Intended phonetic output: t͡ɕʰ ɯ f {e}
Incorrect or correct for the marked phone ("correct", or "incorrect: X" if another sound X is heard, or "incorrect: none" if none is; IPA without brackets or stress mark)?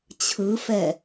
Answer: incorrect: ɛ